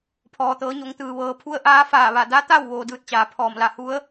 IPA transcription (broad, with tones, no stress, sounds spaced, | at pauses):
pʰ ɔː˩ t̪ ɤː˩˧ ɲ o˩˧ ŋ t̪ ɯː˩ ʋ ɤː˩ pʰ u˧˥ ə̯ ʔ aː˧˥ f aː˧˩ ʋ a˧˩ d a˧˥ t̪ a˥˨ w ʋ oː˧ d ɯː˧˥ t̚ t͡ɕ aː˩ pʰ ɔː˧˩ m l a˧˩ h u˧˥ ə̯